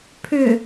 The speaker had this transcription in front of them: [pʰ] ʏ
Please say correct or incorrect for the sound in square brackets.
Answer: correct